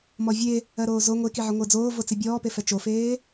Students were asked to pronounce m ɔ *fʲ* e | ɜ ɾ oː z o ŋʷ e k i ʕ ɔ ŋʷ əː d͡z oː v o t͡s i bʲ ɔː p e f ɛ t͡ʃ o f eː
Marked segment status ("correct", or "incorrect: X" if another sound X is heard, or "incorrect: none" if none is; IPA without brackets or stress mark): incorrect: vʲ